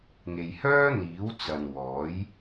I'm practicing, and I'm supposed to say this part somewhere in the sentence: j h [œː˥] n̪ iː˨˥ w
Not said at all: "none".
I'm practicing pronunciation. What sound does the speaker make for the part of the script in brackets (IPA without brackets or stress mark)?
œː˥